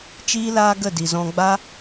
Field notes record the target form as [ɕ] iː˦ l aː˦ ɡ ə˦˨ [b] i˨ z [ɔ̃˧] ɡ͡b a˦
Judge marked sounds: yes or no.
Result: no, no, yes

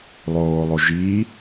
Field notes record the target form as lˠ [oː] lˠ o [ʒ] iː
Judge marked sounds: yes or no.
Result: yes, yes

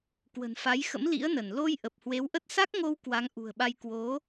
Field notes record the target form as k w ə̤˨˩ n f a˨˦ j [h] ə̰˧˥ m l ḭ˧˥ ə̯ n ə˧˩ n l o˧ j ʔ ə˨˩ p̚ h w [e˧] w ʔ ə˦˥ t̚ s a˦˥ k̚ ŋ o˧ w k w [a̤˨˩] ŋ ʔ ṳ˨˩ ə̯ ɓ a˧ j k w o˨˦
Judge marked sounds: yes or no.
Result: no, no, no

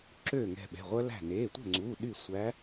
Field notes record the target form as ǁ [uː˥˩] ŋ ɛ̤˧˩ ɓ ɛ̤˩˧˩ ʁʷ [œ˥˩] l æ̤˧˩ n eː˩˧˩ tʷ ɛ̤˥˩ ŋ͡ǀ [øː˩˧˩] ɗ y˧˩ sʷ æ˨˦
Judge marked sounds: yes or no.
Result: no, no, no

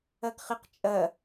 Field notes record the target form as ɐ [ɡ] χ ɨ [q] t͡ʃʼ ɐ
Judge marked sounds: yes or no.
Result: yes, yes

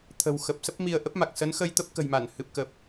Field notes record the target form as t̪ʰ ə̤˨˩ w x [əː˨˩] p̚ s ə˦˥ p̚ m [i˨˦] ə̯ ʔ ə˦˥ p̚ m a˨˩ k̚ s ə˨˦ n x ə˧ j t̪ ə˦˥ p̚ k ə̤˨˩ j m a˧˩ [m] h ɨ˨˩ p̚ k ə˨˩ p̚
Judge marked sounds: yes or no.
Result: no, no, no

